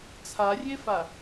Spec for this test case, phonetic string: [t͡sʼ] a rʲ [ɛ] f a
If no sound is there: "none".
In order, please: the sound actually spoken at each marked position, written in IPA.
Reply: t͡sʰ, e

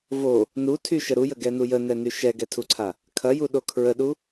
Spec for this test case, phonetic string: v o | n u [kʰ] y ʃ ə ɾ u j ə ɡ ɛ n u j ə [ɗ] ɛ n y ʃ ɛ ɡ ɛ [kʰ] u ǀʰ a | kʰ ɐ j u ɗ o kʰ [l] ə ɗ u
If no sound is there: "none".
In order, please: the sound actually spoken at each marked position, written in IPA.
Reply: tʰ, n, tʰ, ɹ

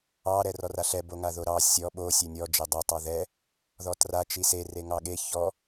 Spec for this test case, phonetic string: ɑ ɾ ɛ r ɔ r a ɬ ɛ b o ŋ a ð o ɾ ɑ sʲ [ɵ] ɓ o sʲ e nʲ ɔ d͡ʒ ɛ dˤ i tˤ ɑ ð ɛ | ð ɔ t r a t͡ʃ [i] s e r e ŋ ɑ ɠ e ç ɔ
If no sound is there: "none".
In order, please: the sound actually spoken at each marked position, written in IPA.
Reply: ɔ, i

